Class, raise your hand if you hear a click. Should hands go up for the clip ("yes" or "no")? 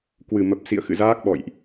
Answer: no